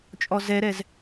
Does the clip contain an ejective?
yes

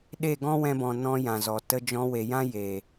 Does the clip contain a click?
no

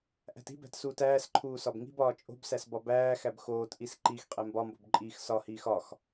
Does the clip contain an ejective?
yes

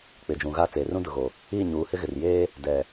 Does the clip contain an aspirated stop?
no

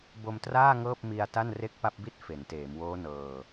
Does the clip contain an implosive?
no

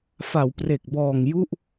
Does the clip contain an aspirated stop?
no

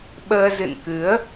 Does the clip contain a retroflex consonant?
no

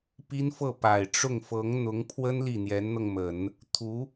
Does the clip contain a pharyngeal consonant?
no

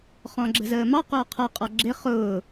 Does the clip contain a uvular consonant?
yes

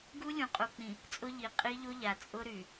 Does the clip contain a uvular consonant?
yes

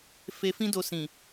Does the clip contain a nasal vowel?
yes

